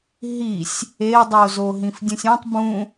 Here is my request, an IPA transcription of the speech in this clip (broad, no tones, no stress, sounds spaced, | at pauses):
ɦ i sʲ | e dˤ o z o ɦ ĩ f dʲ ũ sʲ ũ tˤ b ũ